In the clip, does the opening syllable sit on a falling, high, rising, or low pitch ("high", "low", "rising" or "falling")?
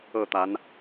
falling